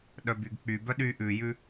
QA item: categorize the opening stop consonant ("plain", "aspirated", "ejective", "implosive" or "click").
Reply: implosive